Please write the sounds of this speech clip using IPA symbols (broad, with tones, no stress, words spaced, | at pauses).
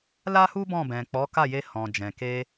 la˦hu˦ bɔ̃˦˨bɛ̃˨ k͡pɔ˨˦ka˦˨je˧ hɔ̃˨d͡ʒɛ̃˨ ke˧